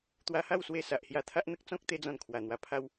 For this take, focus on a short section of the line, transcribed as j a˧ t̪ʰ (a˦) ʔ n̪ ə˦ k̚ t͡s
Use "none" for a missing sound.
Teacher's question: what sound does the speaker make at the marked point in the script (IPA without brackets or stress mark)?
a˦